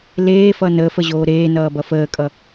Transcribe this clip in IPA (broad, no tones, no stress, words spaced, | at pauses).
leːfʌ nəːfəʑoː ɾeːnʌːbʌ fəːkʼʌ